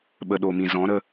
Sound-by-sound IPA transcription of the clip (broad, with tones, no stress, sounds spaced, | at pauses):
ɓ ə˨ ɗ o˨ m ĩ˨ z ɔ̃˨˦ ɾ ə˧